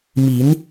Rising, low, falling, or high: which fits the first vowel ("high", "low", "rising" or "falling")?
rising